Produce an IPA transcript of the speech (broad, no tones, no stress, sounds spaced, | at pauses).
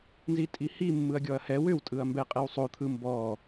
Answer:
n z i tʼ i h i mː ɯ ɐ̯ ɡʲ ɔ ɐ̯ h ɛ w ʏ w tʼ ɯ ɐ̯ m b ɛ qʼ ɛ w sˤ o t̪ʰ ɯ m b ɔ